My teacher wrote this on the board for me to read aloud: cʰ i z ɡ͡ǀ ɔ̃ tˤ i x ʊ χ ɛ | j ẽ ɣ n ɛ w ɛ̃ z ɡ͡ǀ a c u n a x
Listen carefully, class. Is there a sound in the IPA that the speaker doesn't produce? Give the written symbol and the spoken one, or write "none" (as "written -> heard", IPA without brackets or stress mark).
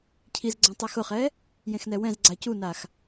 ɣ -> x